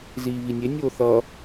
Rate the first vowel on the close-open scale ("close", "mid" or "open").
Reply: close